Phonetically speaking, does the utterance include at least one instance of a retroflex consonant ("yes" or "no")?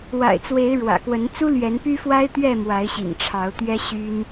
yes